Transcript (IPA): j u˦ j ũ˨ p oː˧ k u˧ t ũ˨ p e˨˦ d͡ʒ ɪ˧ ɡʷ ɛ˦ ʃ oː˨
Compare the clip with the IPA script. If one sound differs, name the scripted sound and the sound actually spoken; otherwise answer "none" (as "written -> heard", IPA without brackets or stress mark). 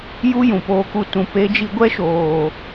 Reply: ɪ˧ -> i˧